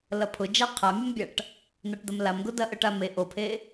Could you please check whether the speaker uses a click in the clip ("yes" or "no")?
no